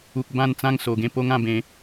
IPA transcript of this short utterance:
u˨ k̚ b ã˥˧ n t͡s ã˥˧ ŋ s o˨˩ ɡ ẽ˥˧ p o˦ ŋ ã˥˧ b ẽ˨˦

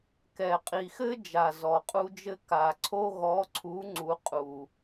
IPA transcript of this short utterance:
k ɛ˨˩ qʼ i˨˩ x ɘ˥ d͡ʒ a˨˩ z ɔ˨˩ qʼ u˥ d͡ʒ ɘ˥ k a˨˩ ǀʰ o˥ ɣ ɔ˨˥ ǀʰ u˨˥ ŋ͡ǀ u˨˥ qʼ u˨˩

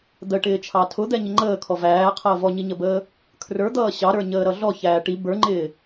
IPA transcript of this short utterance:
d̪ ə ʈ ɪː t͡ʃʰ ɑ tʰ ʊ d̪ ɛ ɲ ɪ ŋ͡ǃ əː kʰ ɔ v æː qʰ əː v ɔ ɲ i ɲ ə b əː | kʰ r ə˞ d̪ ʌː ɕ ɑ ɾ ə˞ ɲ əː ɾ ʌ ɮ ɔ ç æː ʈ i b ə˞ ŋ͡ǃ ɪː

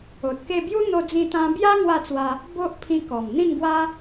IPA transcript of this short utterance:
o˨ t̚ k e˥˧ b j u˦ n̪ o˧ d͡z ĩ˧ t̪ ã˧ b j a˦ ŋ w a˥˧ t͡s w a˧ | b o˦ ʔ pʰ ĩ˧ k ɔ˨˩ m n̪ ĩ˥˧ n ɡ w a˦

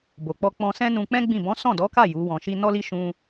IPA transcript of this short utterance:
b o˨ k͡p ɔ˧ k͡p ɔ̃˧ s ɛ̃˦ n ũ˧ k͡p ɛ̃˦ ɡ͡b ĩ˦˨ b ɔ̃˨˦ s ɔ̃˦˨ d ɔ˨˦ k a˦˨ j u˨˦ w ɔ̃˧ ʃ i˦ n ɔ˦ l i˦ ʃ ũ˦

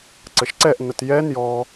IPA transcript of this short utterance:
ǀ ə ʃ ǀ ɛ ʔ n ə t j ɛ n j ɔ

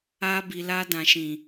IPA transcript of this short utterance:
a˧ b i˨ l a˧ d ã˨ ʃ ĩ˨

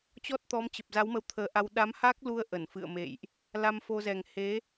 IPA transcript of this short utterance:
t͡ɕ ɔ˦˥ t̚ t̪ ɔ˨˦ m t͡ɕ ə˨˩ p̚ z a˨˦ w m ə˨˦ w t̪ʰ əː˨˦ ʔ a˧ w ɗ a˨˦ m h a˦˥ k̚ l u˧ ə̯ ʔ ə˧˩ n f ɨ̰˧˨ ə̯ m ḛ˧˨ j ʔ | l a˧ m f o˧ z ɛ˨˩ ŋ h e˨˦

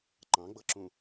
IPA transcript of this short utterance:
ǃ ɑ̃ ɡ͡b ɤ ǁ ũ

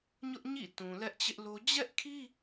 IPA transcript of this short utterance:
ɲ ʊ˦ ʔ ɲ ḭ˦˨ t ũ˨ l ɛ˦ ʔ t͡ɕ ɪ˦ ʔ l o˦ d͡ʑ ɛ˦ ʔ kʰ i˦

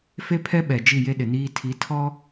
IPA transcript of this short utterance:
f e˦ pʰ ɛ˦ ɓ ɛ˨ d͡ʒ i˦˨ j e˦ ɗ ɪ˨ n iː˦ tʰ i˨˦ tʰ ɔ˦

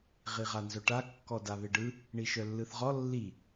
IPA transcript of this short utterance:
ʁ i ʁ a n z œ ʈ a kː ɔ d a β e ɖ ɯ | ɳ i ʃ œ lː ɯ θ ʁ ɔ lː i

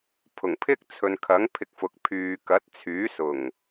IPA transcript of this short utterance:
pʰ ʊ˨˩ ŋ pʰ ɪ˥ k̚ t͡sʰ ɵ˨ n kʰ ɐ˨˥ ŋ pʰ ɪ˨ k̚ f ʊ˨ k̚ pʰ yː˨ k ɐ˨˥ t̚ t͡sʰ yː˨˥ s ʊ˨˩ ŋ

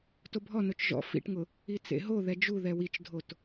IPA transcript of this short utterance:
t o bʱ ɔ n o t͡ʃ ʒ ɔ̰ f ḭ ʈ ŋ ʊ | i t͡s ḛ ɦ o ð ɛ d͡ʒ u ð ɛ w i t͡ʃ dʱ o t

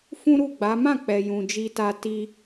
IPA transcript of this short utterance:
f ũ˦ ɾ u˦˨ ɡ͡b a˨˦ m ã˦˨ k͡p ɛ˨ j ũ˨ d͡ʒ i˧ t a˧ t i˧

